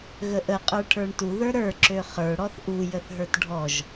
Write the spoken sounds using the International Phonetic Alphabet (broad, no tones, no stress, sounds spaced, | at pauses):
ɣ ə ʔ ə qʼ ə˞ ʈʰ ə˞ ɳ t u ð ə˞ ɾ ə˞ ǁ ø χ ə˞ ɽ ɔ θ ʔ u j ə θ ɦ ə˞ t ɖʱ ɔ ʒ